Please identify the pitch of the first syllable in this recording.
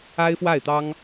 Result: high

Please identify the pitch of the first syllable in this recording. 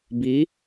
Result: rising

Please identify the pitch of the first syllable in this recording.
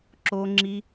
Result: high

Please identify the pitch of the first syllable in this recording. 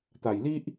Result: low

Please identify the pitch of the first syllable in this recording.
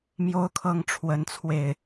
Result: high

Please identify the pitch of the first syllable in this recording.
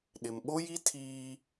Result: low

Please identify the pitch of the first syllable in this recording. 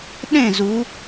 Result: falling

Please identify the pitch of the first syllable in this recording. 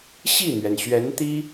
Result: falling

